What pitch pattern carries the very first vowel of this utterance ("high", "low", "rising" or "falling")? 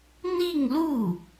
falling